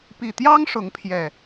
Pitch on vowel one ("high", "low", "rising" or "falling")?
low